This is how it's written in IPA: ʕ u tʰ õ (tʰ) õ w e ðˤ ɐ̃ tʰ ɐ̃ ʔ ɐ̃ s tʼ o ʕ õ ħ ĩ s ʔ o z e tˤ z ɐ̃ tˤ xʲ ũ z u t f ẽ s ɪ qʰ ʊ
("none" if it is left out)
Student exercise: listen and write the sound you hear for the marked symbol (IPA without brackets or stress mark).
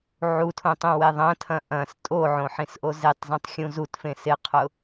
tˤ